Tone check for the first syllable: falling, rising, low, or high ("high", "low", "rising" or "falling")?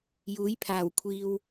rising